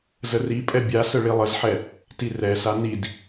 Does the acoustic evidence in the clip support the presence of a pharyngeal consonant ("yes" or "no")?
yes